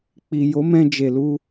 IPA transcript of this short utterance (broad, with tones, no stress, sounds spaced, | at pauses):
k͡p i˨ j o˨˦ m ɛ̃˧ d͡ʒ e˨ l u˧